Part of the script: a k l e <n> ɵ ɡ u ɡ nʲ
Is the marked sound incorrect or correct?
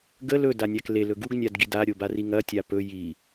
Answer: incorrect